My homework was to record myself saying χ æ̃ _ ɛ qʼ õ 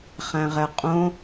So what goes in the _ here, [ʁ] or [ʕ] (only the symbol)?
ʁ